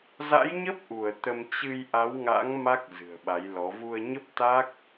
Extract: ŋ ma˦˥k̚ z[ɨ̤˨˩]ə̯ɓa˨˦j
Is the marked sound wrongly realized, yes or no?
no